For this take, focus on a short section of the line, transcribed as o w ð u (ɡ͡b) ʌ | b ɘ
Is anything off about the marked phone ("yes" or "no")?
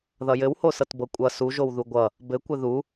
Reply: yes